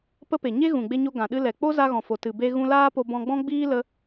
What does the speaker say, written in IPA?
p ə˦ p e˨ ɲ e˦ ɣ ũ˨ ɡ͡b e˧ ɲ o˧ ɡ ã˨ ɗ ɨ˧ l ɛ˨ k͡p o˦ z a˧ ɣ ɔ̃˨ f o˨ t ɨ˨ b e˧ ɣ ũ˧ l aː˦ p o˧ b ɔ̃˧ ɡ͡b ɔ̃˦ ɡ͡b iː˦ l ə˦

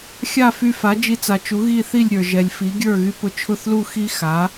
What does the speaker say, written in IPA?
xʲ a˥˩ f y˧ f a˩˥ d͡ʒ i˧ t͡s a˩ t͡ʃ u˩˥ ɣ i˥˩ θ i˥˩ lʲ ɾʲ ə˞˩ ʒ ɛ˩ lʲ f i˩˥ ɡʲ ə˞˥˩ ɣ y˧ p ʊ˧ t͡ʃʰ ʊ˥˩ θ l u˥˩ x i˥ x a˩˥

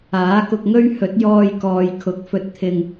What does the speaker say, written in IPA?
aː˨˥ k ʊ˧ k̚ ŋ ɵ˥ ɥ h ɵ˨˥ t̚ j ɔː˧ j k ɔː˨ j kʰ ʊ˨˥ k̚ f ɵ˨ t̚ t̪ʰ ɪ˨ ŋ

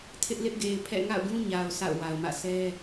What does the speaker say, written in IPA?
tʰ ɪ˦ ʔ l ɪ˦ ʔ ɡ e˨ ɪ̯ pʰ ɛ̰˦˨ ŋ a̰˦˨ ʊ̯ ɡ ũ˦ ɲ a˨ ʊ̯ s a̰˦˨ ʊ̯ w a˨ ʊ̯ m ä̰˦˨ sʰ ɛ˦

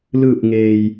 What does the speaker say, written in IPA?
l ɯː˧˩ p̚ ŋ eː˩ j

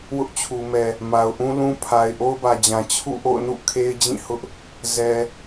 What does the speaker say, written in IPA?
w ʊ˦ ʔ t͡ɕʰ u˨ m ɛ˨ | m a˨ ʊ̯ ʔ ũ˦ l ũ˦ pʰ a˨ ɪ̯ ʔ o˦ ʊ̯ b ä˨ d͡ʑ ã˨ t͡ɕʰ ṵ˦˨ ʔ o̰˦˨ ʊ̯ n ṵ˦˨ kʰ e˦ ɪ̯ d͡ʑ ĩ˦˨ h ʊ˦ ʔ | z ɛ˨

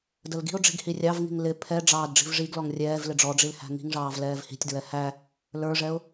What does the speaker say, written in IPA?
d ə l ɡ i̤ ʊ̯ ɖ͡ʐ i̤ ɡ h i rʲ ɑ v ŋ i̤ ŋ l ɪ pʰ ɛ ɖ͡ʐ ɑː d ɖ͡ʐ i̤ v ʐ i ɡ l ɔ ŋ rʲ ɛː v l ɪ ɖ͡ʐ ɔ ɖ͡ʐ i l h æ̤ ŋ i̤ ŋ ʐ ɑː v l ɛː v h i̤ tʲ d ɹ ɛ h æ | l ə˞ ʐ ɛ ʊ̯

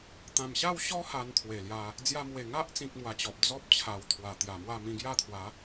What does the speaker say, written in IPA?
t̪ ã˨˩ m ɕ a˥˧ w ɕ ɔ˦ h a˧ n t̪ʰ w e˨˩ l j a˧ | d͡z j a˧ m w e˨˩ ŋ a˦ ʔ t͡s ĩ˨ k̚ m w a˧ t͡ɕ ɔ˨ p̚ d͡z ɔ˦ p̚ t͡ɕʰ a˨˩ w t̪ʰ w a˨˩ t̪ j a˨˩ m w a˥˧ m ĩ˧ ɡ j a˥˧ t̪ʰ w a˨˦

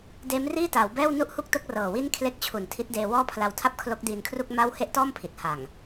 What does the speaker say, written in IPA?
d eː˦˥ m r iː˥˩ t aː˩˦ w b ɛː˥˩ w n u˥˩ ʔ h u˥˩ k̚ t o˥˩ k̚ r ɤː˨˩ w i˥˩ n kʰ l e˦˥ k̚ t͡ɕʰ u˨˩ n tʰ i˦˥ t̚ d eː˧ w ɔː˥˩ pʰ l a˧ w tʰ a˥˩ p̚ kʰ l o˦˥ k̚ d iː˧ n kʰ r u˥˩ k̚ m a˥˩ w h e˥˩ ʔ t ɔː˥˩ m pʰ i˨˩ t̚ h a˨˩ ŋ

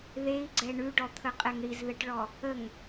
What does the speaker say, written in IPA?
ð e i̯ ɡ͡ǀ ɛ ɳ ʉ ɖ ɔ t̪ʰ ə qʼ ɛ ŋ ɽ i z ð ə ʈ ɭ ɔ | ə ŋ

